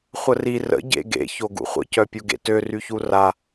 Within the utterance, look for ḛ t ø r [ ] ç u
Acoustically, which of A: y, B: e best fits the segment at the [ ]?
A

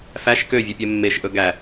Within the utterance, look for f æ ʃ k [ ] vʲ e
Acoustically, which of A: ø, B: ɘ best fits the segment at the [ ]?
A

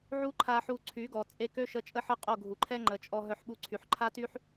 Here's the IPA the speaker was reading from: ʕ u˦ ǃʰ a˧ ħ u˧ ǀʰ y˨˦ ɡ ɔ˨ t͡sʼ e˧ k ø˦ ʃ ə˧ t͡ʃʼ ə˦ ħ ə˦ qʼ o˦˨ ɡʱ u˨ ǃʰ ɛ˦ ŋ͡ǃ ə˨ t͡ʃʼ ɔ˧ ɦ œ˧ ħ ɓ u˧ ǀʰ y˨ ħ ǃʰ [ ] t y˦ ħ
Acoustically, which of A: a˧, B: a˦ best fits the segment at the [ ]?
B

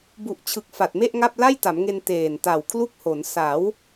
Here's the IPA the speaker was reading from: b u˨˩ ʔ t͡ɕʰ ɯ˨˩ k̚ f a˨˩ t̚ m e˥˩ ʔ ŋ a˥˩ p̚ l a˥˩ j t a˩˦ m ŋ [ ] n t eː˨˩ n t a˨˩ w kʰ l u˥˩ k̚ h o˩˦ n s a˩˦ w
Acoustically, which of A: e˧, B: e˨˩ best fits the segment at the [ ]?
A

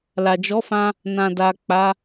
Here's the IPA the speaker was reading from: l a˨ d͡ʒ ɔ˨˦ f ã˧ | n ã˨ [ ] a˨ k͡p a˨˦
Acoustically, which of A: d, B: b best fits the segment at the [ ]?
A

